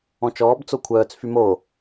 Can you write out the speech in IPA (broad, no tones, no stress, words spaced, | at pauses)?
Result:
ɔ̃t͡ʃɔːb t͡sokʷʰœːt͡s fymo